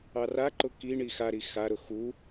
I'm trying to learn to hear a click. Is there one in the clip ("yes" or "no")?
yes